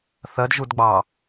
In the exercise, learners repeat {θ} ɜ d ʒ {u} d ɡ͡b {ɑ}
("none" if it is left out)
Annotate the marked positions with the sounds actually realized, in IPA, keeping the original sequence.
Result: θ, u, ɑ

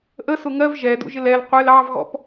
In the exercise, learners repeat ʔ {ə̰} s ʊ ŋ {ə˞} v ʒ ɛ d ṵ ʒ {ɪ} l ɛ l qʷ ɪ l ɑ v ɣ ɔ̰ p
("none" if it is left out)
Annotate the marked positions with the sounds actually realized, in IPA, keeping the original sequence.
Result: ə, ɜ, ɪ

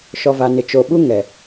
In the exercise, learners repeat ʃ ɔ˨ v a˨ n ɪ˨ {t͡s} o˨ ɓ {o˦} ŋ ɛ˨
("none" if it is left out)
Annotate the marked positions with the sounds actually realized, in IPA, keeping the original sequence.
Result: t͡ʃ, u˦

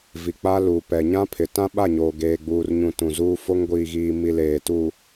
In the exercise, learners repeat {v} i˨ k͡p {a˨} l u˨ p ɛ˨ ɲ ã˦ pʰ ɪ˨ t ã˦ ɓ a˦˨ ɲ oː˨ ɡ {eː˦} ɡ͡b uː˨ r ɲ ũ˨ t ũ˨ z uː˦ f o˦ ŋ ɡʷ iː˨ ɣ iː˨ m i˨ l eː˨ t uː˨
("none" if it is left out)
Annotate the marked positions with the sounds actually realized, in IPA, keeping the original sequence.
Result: v, a˦, eː˨

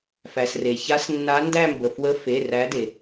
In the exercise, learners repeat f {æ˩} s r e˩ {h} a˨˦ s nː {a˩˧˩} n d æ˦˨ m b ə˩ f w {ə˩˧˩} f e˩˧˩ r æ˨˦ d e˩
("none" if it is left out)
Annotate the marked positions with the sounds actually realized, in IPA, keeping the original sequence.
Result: æ˩, ç, a˨˦, ə˨˦

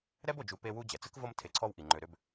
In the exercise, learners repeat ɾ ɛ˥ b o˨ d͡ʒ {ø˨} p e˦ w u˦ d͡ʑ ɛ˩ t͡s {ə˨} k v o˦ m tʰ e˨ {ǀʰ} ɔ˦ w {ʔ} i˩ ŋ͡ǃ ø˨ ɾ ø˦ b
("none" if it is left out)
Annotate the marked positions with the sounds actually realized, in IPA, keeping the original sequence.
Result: u˨, ə˥, ǀʰ, ʔ

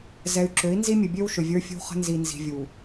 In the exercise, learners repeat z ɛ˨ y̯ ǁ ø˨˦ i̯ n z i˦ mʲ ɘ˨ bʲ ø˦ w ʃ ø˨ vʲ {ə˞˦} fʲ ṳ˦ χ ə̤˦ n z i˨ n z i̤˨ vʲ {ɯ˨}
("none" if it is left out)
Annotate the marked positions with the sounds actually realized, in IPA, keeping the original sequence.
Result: ə˞˦, u˨

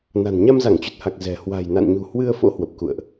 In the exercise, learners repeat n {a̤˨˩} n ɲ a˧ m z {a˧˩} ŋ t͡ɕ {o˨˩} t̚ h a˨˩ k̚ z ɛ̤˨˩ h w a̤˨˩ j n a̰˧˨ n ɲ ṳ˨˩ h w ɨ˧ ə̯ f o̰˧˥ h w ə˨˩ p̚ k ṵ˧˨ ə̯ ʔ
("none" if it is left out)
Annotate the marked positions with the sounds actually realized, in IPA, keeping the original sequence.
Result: a̤˨˩, a˧˩, u˨˩

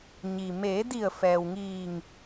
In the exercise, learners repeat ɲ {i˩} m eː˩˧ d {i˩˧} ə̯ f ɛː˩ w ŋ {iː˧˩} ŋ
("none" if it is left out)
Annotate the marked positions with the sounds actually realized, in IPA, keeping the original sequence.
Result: i˩, i˧˩, iː˧˩

